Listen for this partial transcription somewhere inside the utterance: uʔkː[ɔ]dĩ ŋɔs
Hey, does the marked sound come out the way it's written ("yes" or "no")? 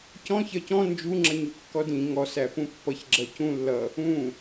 yes